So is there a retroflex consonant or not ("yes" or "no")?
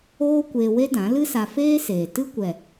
no